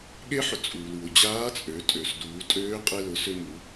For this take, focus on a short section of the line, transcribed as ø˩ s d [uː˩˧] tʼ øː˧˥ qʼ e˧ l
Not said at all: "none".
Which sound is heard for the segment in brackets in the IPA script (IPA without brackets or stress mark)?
uː˩˧